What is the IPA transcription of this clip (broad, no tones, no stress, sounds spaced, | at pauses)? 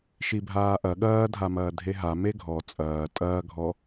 ʃ i bʱ aː ʔ ɐ ɠ ɐː dʱ a m ɐː dʱ e ɦ a m e ɡʱ ɔ t͡sʼ ɐː tʼ ɐː ɡʱ ɔ